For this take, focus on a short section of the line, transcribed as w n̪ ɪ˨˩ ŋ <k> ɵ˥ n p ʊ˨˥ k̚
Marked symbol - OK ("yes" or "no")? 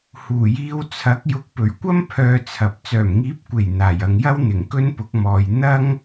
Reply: yes